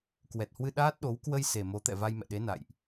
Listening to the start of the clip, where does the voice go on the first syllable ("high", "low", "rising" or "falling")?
low